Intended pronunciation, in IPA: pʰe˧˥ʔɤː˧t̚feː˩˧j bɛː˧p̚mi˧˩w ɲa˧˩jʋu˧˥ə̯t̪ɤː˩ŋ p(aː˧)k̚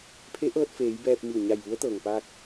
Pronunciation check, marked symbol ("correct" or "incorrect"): correct